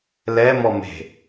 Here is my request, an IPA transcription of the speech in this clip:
l ɛ m ɔ m e̤

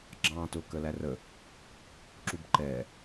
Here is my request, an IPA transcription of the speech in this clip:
ɡ͡ǁ ɑ̃ː t ʊ k ə l æ r ə | ǁ u b ǃ ɛː

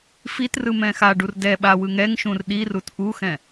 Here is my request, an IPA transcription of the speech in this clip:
f i t r ɯ m ɛ̃ x a ɖ u r d ɛ ɓ a w ɯ ŋ ɛ ŋ ʃ ũ r ɗ i r u t ʔ u x ɛ̃

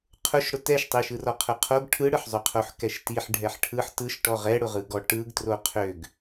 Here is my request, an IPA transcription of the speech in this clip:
qʰ ʊ ʃ ɽ ʊ t ɛ ʃ tˤ i ʃ ɯ r ɔ qʰ ʊ qʰ o ɡ ʈʰ ɯ ɽ ɯ ħ zˤ ʏ qʰ o ħ k ɛ ʃ t i ħ ɖʱ ɛ ħ ʈʰ ɯ ħ t ɯ ʃ ʈ ɔ ʁ ɛ ɽ ʊ ʁ ɯ ɡ ɔ ʈ ɯ ɡ t r o qʰ ø ɡ

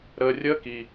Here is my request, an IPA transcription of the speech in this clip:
ɾ əː˨ rʲ əː˦ k i˩

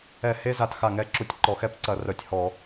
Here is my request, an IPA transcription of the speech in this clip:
ɛ˧˩˧ h e˦˥ z a˧˩ t x a˧˩ ŋ ɛ˧˩ ǁ u˧˩ tʲ ǃ ɔ˧˩˧ x ɛ˦˥ p ǀ ɐ˧˩˧ r œ˧˩ tʲ h ɔ˧˩˧

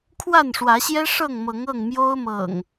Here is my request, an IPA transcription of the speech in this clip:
kʰ w a˥˨ n ʂ w ä˨˦ ɕ j ɛ˦ ʂ ɤ˥˨ ŋ m ɤ˨˦ ŋ ɤ˥˨ ŋ m j o˦ ʊ̯ m ɤ̰˨˩ ŋ

